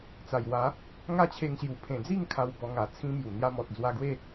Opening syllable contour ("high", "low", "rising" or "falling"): low